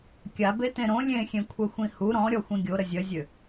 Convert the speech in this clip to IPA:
kʲ a b e t ẽ ɾ õ lʲ ẽ xʲ ẽ kʷʰ œ xʷ ĩ h u ɾ ɔ̃ ɾʲ ɔ xʷ ĩ ɡʲ o ɾ ə zʲ œ zʲ ø

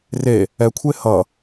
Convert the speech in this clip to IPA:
r e | ɛ kʷʰ e h ʌ

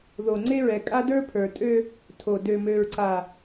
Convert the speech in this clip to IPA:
ð o˨ ŋ͡ǀ e˦ ɹ ɛ˨ kʼ a˦ d ə˞˦ pʰ ə˞˨ tʼ ø˦ | tʰ o˨ d ø˨ m ø˨ ɹ ǀ a˨

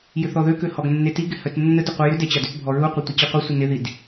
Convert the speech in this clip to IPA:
j ʏ θ ɔ ð ø k ø h ɔ ɡ nː e t i ɡ ɪ h œ t nː ə d ʊ qʷ ɛ j ʏ d ɛ t͡ɕ a d ʏ t bʱ ɔ ɹ u qʷ ɪ tʷ ɪ t͡ɕ i qʷ œ sʷ ə n ɪ ð i d

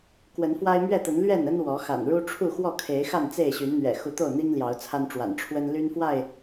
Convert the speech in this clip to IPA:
k w ə˨˦ n f w a˦ ɪ̯ m ɥ ɛ˥˨ t̪ ə˨˦ n l ɥ ɛ˥˨ n ə˦ n w ɔ˨˦ x a̰˨˩ n ɻ u˦ ʈ͡ʂʰ u˥˨ x w ɔ˥˨ kʰ e˨˦ ɪ̯ x a˥˨ n t͡s e˥˨ ɪ̯ ɕ y˨˦ n n̪ ɥ ɛ̰˨˩ x u˨˦ t̪ o˥˨ ʊ̯ n̪ i˦ ŋ l j ɑ˨˦ ʊ̯ t͡sʰ a˦ n ʈ͡ʂ w a̰˨˩ n ʈ͡ʂʰ w ə˦ n l y˦ n f w a˥˨ ɪ̯

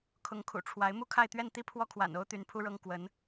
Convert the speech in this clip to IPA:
kʰ ʊ˧˥ ŋ kʰ ṵ˨˩ ʈ͡ʂʰ w a˧˥ ɪ̯ m u˥˧ kʰ a˥˧ ɪ̯ t̪ ɥ ɛ˥˧ n t̪ i˥˧ pʰ w ɔ˥˩ kʰ w a̰˨˩ n o˥ ʊ̯ t̪ y˧˥ n pʰ u˥ ɻ ɤ˥ ŋ k w ə˧˥ n

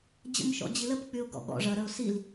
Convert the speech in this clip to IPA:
d͡ʑ ə̰ m ʃ ɔ̰ d͡ʑ i l ə p k͡p y ʊ̯ ɡ ɔ̰ ɠ ɔ̰ ʐ ɐ ɾ ə ʊ̯ s i l

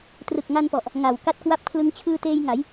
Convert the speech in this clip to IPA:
t r ɯ˨˩ k̚ ŋ a˧ n p ɔ˨˩ ʔ | ŋ a˨˩ w k a˦˥ t̚ k w a˦˥ p̚ kʰ l ɯ˦˥ ŋ t͡ɕʰ ɯː˧ t eː˧ j ŋ a˩˦ j

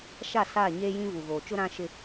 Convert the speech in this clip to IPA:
ʃ a˦˨ s aː˦˨ ɲ eː˦ j ĩ˦ v u˨ ɣ oː˨ t͡ʃ ʊ˦ ɾ ã˦ ʃ ɪ˦

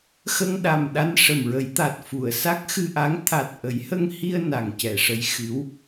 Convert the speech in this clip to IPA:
x ə˧ ŋ ɗ a˨˩ m ɗ a˧ n ʂ ə˨˩ m ɹ ə˨˩˦ j t̪ a˨˩ t̚ f u˨˩˨ ə̯ s a˦˥ k̚ x ɨ˧ ʔ a˧˥ ŋ t̪ʰ a˨˩ t̚ ʔ ə˨˩˦ j h ə˧ ŋ h i˧ ə̯ n a˨˩ ŋ c ɛ˨˩˨ ʂ ə˧˥ j x ɨ˧˥ w

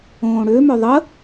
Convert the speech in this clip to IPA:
õː ɽ ø m œ ðˤ ə

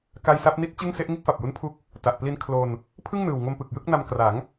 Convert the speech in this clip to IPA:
k a˧ j s a˦˥ p̚ n i˦˥ t̚ t͡ɕ ɯ˥˩ ŋ s e˦˥ ʔ ŋ i˥˩ t̚ f a˨˩ p̚ j u˦˥ n pʰ u˦˥ k̚ | t a˨˩ ʔ p l i˧ n kʰ l o˧ n | pʰ ɯ˥˩ ŋ n ɯː˨˩ w ŋ o˧ m p ɯ˨˩ k̚ j ɯ˥˩ k̚ n a˧ m k r a˩˦ ŋ

